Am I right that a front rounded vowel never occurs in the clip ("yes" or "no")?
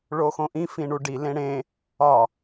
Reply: yes